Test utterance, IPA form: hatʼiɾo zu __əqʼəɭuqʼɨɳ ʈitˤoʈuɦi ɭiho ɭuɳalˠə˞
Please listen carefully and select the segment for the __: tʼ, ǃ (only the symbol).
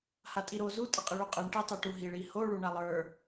tʼ